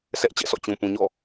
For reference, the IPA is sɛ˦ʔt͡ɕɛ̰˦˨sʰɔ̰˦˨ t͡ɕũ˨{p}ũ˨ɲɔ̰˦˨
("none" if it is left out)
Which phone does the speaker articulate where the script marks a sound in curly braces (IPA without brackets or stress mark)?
p